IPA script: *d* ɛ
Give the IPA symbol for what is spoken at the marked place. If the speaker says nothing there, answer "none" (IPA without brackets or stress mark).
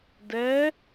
d